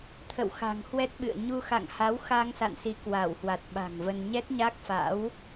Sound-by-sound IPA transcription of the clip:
t̪ʰ ə̰˧˨ w x a̤˨˩ ŋ h w ɛ˦˥ t̚ ɓ ɨ̰˧˨ ə̯ ɲ u˧ x a̰˧˨ ŋ h a˨˦ w x a˧ ŋ s a̰˧˨ n s i˨˦ k w a˧˩ w h w a˨˩ t̚ ɓ a̤˨˩ ŋ v ə˧ n ɲ ɛ˦˥ t̚ ɲ a˦˥ k̚ f a̰˧˥ w

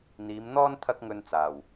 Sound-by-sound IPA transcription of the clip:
n̪ iː˨˧ m n̪ ɔː˥ n t̪ʰ ɐ˥ k̚ ŋ ɵ˧ n t͡s aː˨˩ w

